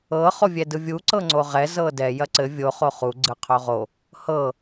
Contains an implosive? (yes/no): no